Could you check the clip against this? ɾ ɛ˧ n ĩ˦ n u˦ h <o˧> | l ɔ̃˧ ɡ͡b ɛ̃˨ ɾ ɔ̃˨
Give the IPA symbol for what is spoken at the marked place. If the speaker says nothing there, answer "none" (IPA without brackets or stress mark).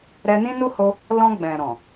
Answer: o˧